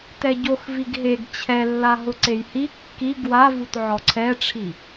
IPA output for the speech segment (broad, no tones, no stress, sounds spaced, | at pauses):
t ɛ ɟ o x v i ɡ ɦ e ɡ t͡ɕʰ ɛ lː a ɦ ʊ ǀ e j h i kː i ɡ w a v u t ʕ ɔ ǀʰ ɛ ʈ͡ʂʰ i